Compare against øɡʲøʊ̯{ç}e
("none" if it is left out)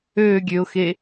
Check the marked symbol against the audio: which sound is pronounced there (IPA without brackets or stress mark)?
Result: x